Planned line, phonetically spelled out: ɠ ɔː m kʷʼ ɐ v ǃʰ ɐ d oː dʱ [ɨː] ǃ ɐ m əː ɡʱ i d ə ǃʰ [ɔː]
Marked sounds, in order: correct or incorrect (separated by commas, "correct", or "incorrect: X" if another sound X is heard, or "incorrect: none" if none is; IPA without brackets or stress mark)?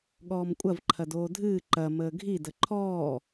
correct, correct